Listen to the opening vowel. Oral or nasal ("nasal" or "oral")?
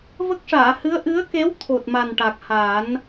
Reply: oral